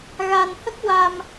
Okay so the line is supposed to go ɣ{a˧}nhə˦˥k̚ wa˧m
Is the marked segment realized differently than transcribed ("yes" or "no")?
no